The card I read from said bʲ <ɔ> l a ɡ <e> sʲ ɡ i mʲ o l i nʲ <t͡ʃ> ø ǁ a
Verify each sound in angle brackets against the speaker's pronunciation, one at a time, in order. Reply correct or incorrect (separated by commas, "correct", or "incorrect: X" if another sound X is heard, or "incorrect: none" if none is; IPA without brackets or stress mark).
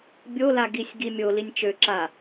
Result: incorrect: o, incorrect: i, correct